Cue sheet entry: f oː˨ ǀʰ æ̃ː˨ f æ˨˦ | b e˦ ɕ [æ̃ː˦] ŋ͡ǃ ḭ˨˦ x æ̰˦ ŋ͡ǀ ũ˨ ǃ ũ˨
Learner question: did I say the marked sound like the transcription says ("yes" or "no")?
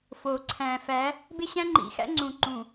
no